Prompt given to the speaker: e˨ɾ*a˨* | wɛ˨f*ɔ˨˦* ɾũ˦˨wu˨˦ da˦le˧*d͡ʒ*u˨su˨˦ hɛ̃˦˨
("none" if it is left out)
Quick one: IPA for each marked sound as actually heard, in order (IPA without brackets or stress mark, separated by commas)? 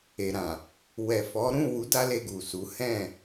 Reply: ã˨, ɔ˨˦, ɡ